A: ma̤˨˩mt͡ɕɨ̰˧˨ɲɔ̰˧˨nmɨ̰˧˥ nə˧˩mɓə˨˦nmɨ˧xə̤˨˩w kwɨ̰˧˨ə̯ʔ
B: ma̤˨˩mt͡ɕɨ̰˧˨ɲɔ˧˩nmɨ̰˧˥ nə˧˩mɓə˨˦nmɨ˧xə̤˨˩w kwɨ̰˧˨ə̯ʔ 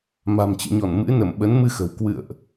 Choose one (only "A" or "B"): B